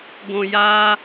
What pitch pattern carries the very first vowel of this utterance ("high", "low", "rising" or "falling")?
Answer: high